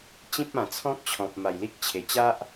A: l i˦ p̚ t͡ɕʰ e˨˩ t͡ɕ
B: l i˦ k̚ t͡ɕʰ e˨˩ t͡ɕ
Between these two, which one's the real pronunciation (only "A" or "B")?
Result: B